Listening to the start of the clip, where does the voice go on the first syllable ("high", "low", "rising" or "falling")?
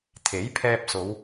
rising